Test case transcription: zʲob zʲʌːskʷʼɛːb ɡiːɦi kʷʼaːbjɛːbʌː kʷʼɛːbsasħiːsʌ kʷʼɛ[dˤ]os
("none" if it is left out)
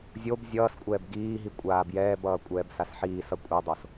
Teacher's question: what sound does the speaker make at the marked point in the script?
dˤ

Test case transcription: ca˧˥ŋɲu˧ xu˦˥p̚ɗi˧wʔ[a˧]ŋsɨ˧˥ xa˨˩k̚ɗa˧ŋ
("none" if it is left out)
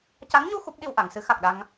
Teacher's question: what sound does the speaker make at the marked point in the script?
a˨˩˨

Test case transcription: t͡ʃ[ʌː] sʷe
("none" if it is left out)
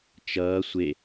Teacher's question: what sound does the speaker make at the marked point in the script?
ʌː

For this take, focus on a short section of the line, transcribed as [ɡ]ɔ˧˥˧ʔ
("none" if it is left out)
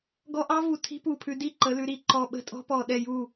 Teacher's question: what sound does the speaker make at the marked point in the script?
ɡ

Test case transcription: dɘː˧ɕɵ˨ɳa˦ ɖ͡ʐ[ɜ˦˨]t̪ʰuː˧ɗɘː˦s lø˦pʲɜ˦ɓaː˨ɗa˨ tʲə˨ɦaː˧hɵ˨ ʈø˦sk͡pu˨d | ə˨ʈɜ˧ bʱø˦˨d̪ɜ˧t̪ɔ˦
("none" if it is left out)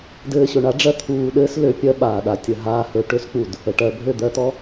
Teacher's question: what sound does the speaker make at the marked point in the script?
ɜ˦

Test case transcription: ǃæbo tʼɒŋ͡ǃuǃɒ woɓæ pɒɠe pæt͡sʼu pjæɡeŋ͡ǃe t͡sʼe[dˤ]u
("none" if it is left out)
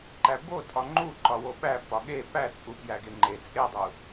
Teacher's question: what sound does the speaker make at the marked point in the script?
dˤ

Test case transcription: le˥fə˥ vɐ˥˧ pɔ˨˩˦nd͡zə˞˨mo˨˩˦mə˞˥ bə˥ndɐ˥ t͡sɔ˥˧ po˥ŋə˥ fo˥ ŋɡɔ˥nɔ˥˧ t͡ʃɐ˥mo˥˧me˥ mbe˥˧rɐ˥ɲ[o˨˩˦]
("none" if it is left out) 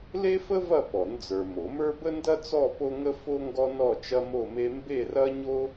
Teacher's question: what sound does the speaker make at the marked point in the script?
o˥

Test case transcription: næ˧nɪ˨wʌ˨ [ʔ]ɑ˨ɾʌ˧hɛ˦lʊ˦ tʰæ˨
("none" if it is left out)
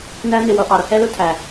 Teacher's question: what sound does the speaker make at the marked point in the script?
ʔ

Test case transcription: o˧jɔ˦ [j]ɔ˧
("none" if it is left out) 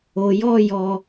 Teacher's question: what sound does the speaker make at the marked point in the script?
j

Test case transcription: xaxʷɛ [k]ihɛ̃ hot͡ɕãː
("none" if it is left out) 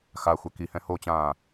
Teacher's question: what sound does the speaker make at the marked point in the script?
k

